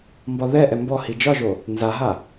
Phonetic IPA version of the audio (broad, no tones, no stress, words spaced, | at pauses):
mbɒðɛʔɛ mbɔ hid͡ʒɒʒo | nzaɦa